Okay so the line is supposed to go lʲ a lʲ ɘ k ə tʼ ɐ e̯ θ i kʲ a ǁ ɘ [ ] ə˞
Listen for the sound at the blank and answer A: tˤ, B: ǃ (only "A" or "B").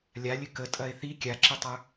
A